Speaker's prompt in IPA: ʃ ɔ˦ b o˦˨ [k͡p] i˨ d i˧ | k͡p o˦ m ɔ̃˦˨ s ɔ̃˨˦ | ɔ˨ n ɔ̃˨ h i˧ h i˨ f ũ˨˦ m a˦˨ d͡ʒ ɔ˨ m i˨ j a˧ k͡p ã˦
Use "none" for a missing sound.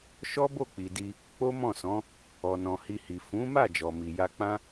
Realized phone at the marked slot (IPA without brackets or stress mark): k͡p